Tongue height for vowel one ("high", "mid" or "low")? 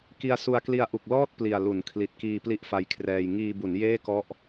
high